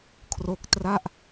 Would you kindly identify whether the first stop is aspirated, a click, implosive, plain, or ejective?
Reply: aspirated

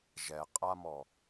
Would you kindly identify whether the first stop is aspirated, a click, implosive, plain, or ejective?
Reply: ejective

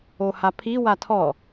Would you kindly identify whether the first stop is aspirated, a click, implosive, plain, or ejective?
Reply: aspirated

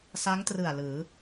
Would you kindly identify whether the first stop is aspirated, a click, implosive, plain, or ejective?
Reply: plain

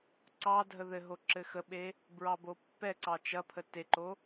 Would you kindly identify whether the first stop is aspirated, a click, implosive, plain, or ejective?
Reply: click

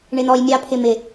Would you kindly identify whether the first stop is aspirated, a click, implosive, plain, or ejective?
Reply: aspirated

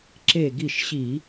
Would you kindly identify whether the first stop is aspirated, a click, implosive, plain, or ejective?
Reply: click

